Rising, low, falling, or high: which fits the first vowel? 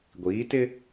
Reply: rising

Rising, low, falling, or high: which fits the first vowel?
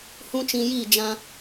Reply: high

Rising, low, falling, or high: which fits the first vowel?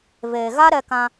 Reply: low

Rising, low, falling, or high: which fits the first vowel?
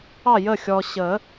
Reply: falling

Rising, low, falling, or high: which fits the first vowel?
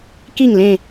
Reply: falling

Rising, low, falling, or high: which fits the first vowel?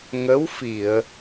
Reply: rising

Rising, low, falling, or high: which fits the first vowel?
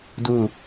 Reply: falling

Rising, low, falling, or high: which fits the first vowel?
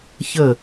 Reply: falling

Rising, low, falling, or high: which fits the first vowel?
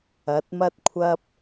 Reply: rising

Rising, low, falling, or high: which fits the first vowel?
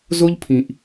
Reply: high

